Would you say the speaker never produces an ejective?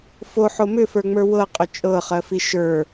no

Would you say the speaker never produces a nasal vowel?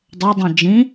no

